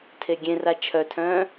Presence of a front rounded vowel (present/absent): present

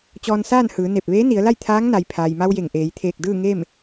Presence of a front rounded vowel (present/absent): absent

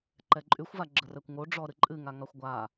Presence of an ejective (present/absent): present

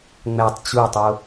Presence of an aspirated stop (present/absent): absent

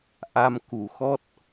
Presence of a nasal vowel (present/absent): absent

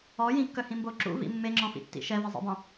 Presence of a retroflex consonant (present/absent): absent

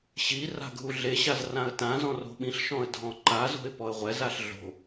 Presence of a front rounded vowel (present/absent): absent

